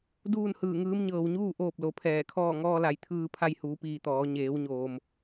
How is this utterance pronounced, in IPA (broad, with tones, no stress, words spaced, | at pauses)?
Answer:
duː˥˨nhɯː˧˩ŋɯː˧˥m ɲɤː˩wɲuː˥˨ ʔoː˥˨p̚lo˩˧pʰɛː˧˩kʰɔː˥˨ ŋɔː˧la˩˧j t̪ʰɯː˧ pʰa˧jhuː˩˧piː˩ t̪ɔː˩˧ ɲeː˩˧w ɲoː˩m